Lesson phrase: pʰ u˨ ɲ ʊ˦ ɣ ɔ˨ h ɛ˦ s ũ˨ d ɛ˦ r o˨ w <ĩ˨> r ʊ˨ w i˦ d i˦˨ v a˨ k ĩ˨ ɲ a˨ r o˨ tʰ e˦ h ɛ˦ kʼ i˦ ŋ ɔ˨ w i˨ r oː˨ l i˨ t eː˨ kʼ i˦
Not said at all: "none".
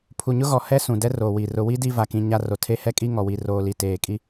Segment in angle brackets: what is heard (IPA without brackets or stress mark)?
i˨